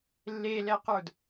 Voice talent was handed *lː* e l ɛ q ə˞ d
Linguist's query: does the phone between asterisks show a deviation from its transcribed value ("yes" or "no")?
no